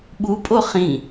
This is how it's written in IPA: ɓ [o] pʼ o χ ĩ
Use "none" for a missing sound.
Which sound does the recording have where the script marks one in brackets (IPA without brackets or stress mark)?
u